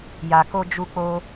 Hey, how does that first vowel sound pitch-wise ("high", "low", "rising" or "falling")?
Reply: low